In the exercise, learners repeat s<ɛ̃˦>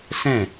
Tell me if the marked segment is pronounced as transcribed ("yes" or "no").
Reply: no